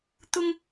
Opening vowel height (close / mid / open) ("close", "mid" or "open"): close